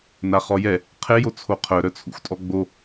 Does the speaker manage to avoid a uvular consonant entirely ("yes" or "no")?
no